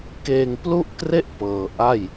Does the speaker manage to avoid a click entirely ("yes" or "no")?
yes